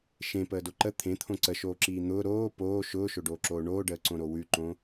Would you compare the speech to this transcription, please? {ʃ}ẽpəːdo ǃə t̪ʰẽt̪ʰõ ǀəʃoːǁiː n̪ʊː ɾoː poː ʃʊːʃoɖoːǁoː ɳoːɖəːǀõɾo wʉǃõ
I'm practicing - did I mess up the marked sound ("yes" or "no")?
no